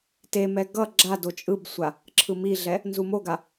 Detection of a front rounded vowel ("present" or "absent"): absent